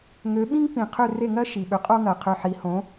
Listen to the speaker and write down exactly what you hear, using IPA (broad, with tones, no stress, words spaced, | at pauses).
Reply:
ŋø˩˥ɓĩ˥ŋpĩ˩ qʰʏ˥˩re˥˩ŋɜ˥ ʃi˩ɓʏ˩˥qʼo˥ ŋɜ˩qʰʏ˧ ħi˩˥hõ˩˥